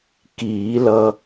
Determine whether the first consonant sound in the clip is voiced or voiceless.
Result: voiceless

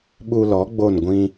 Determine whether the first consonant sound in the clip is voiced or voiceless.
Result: voiced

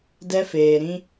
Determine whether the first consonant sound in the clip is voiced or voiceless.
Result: voiced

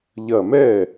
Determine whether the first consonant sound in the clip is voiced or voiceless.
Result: voiced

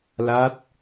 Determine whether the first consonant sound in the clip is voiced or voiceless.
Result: voiced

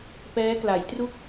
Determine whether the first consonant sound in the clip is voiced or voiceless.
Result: voiceless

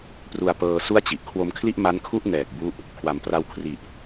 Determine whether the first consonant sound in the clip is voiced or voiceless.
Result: voiceless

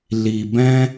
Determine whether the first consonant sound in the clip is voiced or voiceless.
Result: voiced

